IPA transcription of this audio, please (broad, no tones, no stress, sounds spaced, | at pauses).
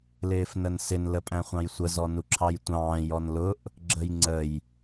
l ɪː f n ə n s ɪ n l ə pʼ æ̃ χʷ ɑ̃ j sʷ ə z ɔ n u ǁʰ ɑ j tʷ ɑ̃ː j ɔ n l ʊ ʔ | ɡ͡ǁ ə j ŋ͡ǀ ə j